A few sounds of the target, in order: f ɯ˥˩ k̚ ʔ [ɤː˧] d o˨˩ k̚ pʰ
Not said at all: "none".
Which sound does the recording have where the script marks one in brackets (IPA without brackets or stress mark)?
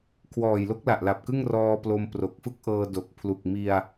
ɤː˧